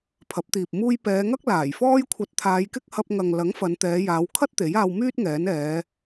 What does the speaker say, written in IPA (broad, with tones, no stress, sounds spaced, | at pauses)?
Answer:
pʰ ɐ˨˥ p̚ t̪ iː˨ p̚ m uː˥ j p ɛː˨˧ ŋ ɐ˥ k̚ l aː˨˩ j f ɔː˥ j kʷʰ ɐ˧ t̚ t̪ʰ aː˨˧ j k ɪ˥ k̚ h ɐ˧ p̚ ŋ ɐ˨ ŋ l ɐ˨˥ ŋ f ɐ˨˧ n t̪ ɛː˨˧ j aː˨˧ w kʰ ɐ˥ t̚ t̪ e˨˥ j aː˧ w m yː˥ t̚ ŋ ɛː˨˥ n ɛː˨˧